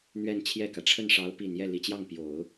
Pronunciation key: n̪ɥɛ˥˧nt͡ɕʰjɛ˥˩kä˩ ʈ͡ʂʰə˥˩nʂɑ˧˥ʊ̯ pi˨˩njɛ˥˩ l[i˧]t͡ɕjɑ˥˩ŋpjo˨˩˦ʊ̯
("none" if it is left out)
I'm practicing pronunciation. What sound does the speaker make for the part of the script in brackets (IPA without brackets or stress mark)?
i˨˩